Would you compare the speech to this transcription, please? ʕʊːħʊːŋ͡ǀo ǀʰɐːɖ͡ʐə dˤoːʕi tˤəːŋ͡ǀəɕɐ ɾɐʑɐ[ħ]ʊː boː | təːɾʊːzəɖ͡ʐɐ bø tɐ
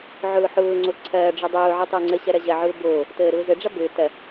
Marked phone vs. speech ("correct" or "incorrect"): incorrect